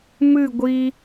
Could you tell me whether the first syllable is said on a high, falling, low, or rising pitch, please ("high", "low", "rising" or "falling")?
falling